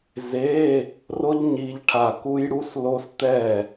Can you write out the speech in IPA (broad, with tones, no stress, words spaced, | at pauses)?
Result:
ze˧˥˧ | ro˦˥ʎ ɲi˦˥ʎʈʰa˦˨ ku˦˥jɽu˧˥˧slo˦˥s t̪ɛ˦˨